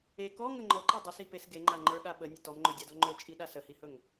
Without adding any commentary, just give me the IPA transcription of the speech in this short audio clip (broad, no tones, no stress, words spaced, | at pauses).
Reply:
e kɔŋə ŋ͡ǃɔǃe dˤəsipes ɡeŋ͡ǃaŋ͡ǃə˞ɠa ɓənʲə tɔmŋ͡ǃɵdʲadɔ ŋ͡ǃɵt͡ʃʼiɗa səhihɵŋ